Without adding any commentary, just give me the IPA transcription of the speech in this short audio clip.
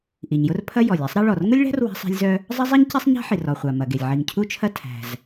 ʔi˩ɲjʊ˥r pʰɐ˥ jɔ˩lʲæ˥sˤɾɐ˥ ɭɔ˩rŋʊ˥lʲɭæ̤˥r wa̤˥sˤæ̤˥lʲzœ˥ | zˤɐ˥zˤi˥ɲ ce˥sˤɲa̤˥ħi˩r ɔ˩χʷa˩mɐ˩ɡe˩lʲ ʕi˩ŋcʰu˥t͡ʃʰɐ˥ tʰæ̤˩z

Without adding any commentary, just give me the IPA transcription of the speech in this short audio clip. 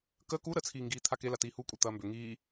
kəː ku ɾət͡sʰiːŋɡiː t̪ʰakela tiːhukʷʼɛ t̪ɐːmbʏ ŋiː

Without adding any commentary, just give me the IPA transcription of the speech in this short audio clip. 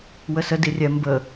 wəsə dirʲɛ mbə

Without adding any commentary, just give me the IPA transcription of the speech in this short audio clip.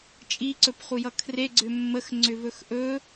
t͡ʃʼiǀɵpχujʌ kʰreɡ͡ǀʏ mːəxŋ͡ǀʏvɵx ʔɵ

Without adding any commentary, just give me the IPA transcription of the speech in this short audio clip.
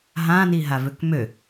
ɦãniɦavøk mø

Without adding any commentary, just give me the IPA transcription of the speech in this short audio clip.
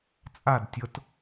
t͡sʼadtʲɤt

